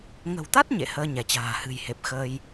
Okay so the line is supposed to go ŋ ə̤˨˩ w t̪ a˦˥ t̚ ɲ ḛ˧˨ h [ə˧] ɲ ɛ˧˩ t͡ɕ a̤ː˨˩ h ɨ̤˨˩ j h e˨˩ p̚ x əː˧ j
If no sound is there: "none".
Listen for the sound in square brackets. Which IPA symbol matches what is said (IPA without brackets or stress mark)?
əː˧